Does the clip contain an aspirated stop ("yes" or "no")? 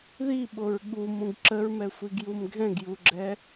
no